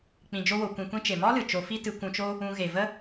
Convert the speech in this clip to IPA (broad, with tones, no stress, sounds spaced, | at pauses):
k͡p ĩ˧ d͡ʒ o˦ w o˧ kʷ ĩ˧ kʷ ĩ˦ t͡ʃ e˨ m ɔ˦ l ɨ˨ t͡ʃ o˧ f i˦ t ɨ˧ kʷ ũ˧ t͡ʃ o˦ | ũ˧ ɣ e˨ v ə˦